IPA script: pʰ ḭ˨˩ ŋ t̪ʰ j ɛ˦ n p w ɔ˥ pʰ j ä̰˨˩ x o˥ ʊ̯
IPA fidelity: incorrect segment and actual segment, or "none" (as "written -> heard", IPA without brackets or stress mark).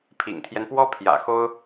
none